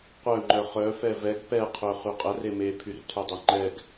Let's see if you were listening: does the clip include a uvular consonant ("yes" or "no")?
yes